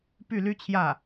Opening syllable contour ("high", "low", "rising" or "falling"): falling